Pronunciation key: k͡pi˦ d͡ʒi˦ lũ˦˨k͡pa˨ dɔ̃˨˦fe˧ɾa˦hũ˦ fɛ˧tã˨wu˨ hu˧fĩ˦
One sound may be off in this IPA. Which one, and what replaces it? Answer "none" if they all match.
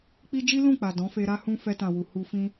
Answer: none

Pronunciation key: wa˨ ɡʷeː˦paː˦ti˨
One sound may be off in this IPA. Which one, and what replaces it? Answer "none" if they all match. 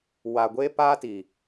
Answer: none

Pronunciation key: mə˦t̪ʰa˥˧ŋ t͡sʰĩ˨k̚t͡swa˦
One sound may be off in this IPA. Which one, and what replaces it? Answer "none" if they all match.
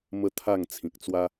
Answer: none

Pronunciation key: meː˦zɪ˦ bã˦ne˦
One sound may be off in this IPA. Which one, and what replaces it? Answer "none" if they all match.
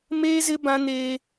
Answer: e˦ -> eː˦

